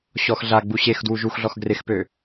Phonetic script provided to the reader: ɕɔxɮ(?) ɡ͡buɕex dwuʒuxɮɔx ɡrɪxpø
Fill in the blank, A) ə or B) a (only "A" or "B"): B